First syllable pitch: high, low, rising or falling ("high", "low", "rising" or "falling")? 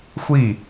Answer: falling